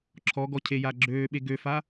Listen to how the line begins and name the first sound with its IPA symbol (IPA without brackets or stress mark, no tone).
ǁʰ